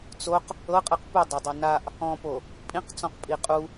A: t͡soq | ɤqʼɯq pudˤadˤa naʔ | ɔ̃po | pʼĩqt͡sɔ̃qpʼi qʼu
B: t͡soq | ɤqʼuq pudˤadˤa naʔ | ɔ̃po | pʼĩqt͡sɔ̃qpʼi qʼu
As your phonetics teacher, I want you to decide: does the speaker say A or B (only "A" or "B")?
A